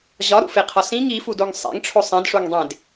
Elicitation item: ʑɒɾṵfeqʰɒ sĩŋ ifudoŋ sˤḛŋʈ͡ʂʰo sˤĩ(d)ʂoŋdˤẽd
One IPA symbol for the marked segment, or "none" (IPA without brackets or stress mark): d